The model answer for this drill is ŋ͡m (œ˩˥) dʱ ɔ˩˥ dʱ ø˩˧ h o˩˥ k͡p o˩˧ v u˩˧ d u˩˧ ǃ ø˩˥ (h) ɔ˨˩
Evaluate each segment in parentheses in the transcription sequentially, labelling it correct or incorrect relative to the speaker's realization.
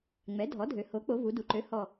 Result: incorrect, correct

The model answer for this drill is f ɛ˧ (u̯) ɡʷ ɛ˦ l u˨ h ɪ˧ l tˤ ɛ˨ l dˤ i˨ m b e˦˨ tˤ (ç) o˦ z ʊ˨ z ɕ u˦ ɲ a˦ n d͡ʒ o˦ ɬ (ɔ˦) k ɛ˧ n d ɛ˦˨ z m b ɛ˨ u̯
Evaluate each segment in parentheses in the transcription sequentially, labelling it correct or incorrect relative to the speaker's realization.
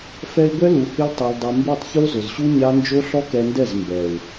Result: incorrect, correct, correct

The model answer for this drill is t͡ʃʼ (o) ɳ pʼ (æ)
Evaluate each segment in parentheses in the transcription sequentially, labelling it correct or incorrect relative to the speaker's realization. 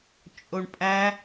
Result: correct, correct

